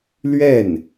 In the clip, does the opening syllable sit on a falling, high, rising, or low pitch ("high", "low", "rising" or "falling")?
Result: falling